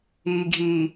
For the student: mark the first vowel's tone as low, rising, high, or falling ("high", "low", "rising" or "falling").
low